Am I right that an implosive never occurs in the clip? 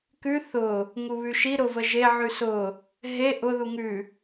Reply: yes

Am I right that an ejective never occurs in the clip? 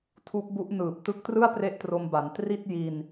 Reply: yes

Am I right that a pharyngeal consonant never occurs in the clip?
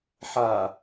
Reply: no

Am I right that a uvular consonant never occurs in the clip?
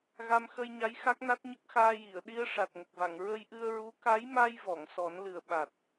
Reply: yes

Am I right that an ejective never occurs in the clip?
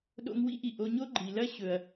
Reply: yes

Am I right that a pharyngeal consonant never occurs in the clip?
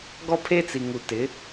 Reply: yes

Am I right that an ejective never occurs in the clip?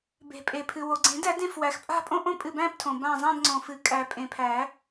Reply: no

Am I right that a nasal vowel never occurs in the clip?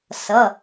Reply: yes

